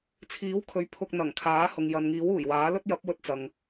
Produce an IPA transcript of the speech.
t͡sʰ iː˨˥ w kʰ ɵ˨˥ ɥ pʰ ʊ˧ k̚ n̪ ɐ˨˩ ŋ kʰ aː˨˥ h ʊ˨ ŋ j ɐ˨ n ŋ iː˨˥ w uː˨˩ j w aː˨˥ l ɵ˥ t̚ j ɐ˨˥ p̚ w ɵ˧ t̚ t͡s ɐ˨ ŋ

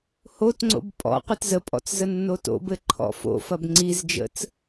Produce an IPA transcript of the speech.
h o t ŋ͡ǀ o̰ b pʼ ɔ̰ qʷ ɘ t z ə pʼ ɔ̰ t͡s z ə nː o t o̰ b ɘ ǃʰ ɔ̰ f o̰ f ɐ b ŋ͡ǀ i z d͡ʒ ə̰ t͡s

